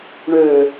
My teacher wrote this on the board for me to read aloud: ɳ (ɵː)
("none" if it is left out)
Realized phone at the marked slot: øː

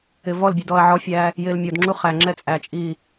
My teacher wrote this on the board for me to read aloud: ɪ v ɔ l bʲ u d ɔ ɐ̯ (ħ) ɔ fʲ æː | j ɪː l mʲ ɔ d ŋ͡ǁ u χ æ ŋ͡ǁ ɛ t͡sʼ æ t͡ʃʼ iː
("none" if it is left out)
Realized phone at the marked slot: ʕ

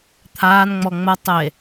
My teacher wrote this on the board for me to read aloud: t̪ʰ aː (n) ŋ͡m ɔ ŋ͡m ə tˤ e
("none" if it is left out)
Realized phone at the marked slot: n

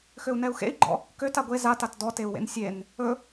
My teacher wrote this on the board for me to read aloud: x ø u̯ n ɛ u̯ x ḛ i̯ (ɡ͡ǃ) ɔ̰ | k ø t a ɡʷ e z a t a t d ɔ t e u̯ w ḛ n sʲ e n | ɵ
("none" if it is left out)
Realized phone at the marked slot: ɡ͡ǃ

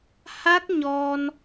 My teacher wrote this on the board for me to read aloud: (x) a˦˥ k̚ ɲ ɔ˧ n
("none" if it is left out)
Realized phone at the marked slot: h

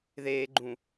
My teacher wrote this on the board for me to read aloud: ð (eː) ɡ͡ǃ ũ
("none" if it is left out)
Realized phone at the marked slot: eː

